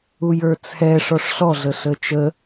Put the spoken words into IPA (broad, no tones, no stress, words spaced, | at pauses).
ujə˞t͡sʰɛ ʂɔʂɬɔ ɮəɬət͡ʃə